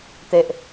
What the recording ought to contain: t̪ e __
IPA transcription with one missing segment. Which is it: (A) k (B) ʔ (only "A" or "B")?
B